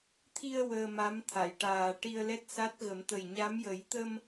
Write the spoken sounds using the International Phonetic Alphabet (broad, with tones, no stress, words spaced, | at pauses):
t̪ʰi˧ə̯ wəː˧ma˧˥m t̪ʰa˨˩˨jʈaː˨˩ ʈi˧ə̯lɛ˦˥t̚sa˦˥t̚ɣə˨˩˦m t̪ə˨˩jɲa˧˥mjə˨˩˦j t̪ə˧m